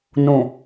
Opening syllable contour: low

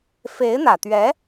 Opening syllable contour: rising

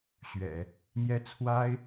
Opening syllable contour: low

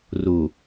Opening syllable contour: low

